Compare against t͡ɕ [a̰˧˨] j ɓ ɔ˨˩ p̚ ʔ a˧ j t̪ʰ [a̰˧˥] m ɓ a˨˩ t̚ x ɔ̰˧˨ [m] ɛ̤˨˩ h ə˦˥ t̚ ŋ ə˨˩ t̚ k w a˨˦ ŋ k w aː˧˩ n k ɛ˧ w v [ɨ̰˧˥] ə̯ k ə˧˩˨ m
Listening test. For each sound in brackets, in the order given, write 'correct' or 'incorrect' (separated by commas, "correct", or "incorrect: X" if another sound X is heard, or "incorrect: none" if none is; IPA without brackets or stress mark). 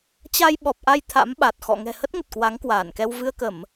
incorrect: a˧, correct, incorrect: ŋ, incorrect: ɨ˧